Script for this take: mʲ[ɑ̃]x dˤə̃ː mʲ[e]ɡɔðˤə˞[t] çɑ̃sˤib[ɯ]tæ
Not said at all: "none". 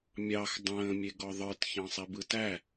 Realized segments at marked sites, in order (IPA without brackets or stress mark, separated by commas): ɑ, e, t, ɯ